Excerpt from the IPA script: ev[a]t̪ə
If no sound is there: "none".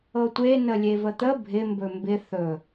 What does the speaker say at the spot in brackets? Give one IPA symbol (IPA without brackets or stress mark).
ə